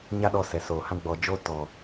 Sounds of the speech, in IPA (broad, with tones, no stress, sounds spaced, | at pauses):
ɲ a˦ ɗ ɔ˧ s ɛ˨ s oː˨ h ã˦ ɡ͡b ɔ˧ d͡ʒ oː˦ t ɔ˨